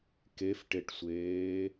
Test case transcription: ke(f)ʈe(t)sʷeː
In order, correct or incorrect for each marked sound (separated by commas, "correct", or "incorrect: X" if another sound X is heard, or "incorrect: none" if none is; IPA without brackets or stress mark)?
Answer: correct, incorrect: ʈ